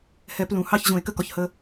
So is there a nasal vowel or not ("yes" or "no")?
yes